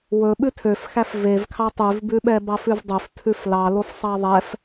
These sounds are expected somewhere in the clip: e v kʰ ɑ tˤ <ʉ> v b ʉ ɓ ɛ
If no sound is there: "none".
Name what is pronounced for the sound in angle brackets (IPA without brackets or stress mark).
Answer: ʉ